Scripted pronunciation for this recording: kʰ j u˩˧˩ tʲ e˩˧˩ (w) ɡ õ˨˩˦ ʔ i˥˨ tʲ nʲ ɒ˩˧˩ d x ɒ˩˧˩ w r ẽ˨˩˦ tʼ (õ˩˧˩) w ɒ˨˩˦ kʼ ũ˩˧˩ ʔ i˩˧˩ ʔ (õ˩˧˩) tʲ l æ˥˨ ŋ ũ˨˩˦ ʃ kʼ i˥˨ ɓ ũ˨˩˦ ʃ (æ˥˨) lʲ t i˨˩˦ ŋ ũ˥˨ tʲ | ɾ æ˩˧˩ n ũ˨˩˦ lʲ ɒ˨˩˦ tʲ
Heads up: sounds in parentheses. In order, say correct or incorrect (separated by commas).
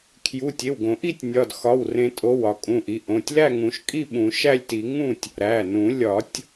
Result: correct, incorrect, correct, correct